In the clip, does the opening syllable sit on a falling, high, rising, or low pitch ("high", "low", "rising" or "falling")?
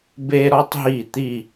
high